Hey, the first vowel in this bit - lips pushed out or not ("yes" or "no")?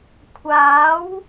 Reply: no